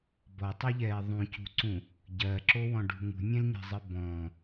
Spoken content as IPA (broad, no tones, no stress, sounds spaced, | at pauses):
b ɔ tˤ ɛ ʎ ɛː ðˤ ũ c ṳ ǀ ũ | ɟ ɜ ǁ o w ɔ̃ ɖ ṳ ŋ ṳ nʲ ɛ̃ l ɲ ɛ̤ zˤ ɨ b ɔ̃